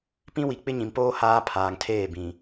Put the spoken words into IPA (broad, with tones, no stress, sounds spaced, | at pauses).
p ĩ˦ w i˨ k͡p ɪ˦ ɲ ĩ˨ m p oː˦ h aː˦ pʰ aː˨ ŋ tʰ eː˦˨ b ĩ˨